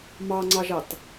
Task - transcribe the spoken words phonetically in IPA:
mɑŋ͡ǀɑʒɑt

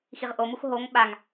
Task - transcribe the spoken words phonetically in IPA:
xiʁʔomux ɦoŋ ɓaŋ

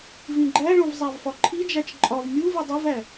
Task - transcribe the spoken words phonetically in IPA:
vĩɡ͡ǃæɭõv zˤævfɒǃʰid͡ʒæt͡ʃ ǃʼɒv mʲu vidˤivæ

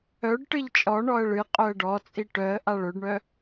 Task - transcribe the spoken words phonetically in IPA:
œɖ ʈɨʎt͡ʃʼɔ ɳɔə̯ɭɨ qʼœə̯ɖɔt͡sʼi ʈœə̯ ʔaɭɵɖɳœ

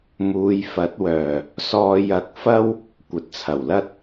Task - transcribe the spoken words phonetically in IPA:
muː˨˧jfɐ˨˥t̚wœː˨˩ | sɔː˧ jɐ˧k̚fɐ˥w | kʷɐ˨t̚t͡sʰɐ˨˩wlɐ˥t̚

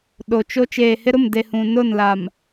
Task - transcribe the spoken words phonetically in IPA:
ɗo˨t͡ʃo˦ t͡ʃeː˨hɪ˦ɾʊ˦˨mde˨ hũ˨ nʊ˦˨nla˨m

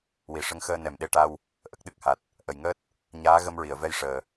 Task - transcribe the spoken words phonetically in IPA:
wi˨˩˨ʂə˧˥ŋxəː˧ nɛ˨˩˨mɗe˧˥ʈa˧w | ʔə˦˥k̚ɗɨ˦˥k̚ha˨˩t̚ | ʔə˨˩jŋəː˦˥t̚ | ɲaː˧˥ɣə˧mɹi˨˩˨ə̯vɛ˧j ʂəː˨˩

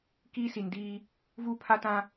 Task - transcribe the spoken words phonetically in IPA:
kiː˦si˨ndiː˦ | vuː˦pʰa˦tã˦

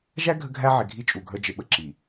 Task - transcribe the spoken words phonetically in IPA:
ʒæ˦ ɡʱə˦ɡʱæ˦ʕɪ˨ ɡʱi˦t͡ʃʼu˨ɡʱə˞˦ d͡ʒɪ˨ɓə˨ ǁi˨

